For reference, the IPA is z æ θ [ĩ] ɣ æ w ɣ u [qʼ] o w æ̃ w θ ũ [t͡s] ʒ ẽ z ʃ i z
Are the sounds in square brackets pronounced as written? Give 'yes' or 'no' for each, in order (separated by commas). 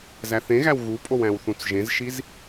no, no, yes